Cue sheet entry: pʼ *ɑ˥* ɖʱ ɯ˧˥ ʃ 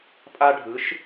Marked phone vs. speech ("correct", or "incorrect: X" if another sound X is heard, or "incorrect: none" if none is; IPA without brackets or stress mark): incorrect: a˥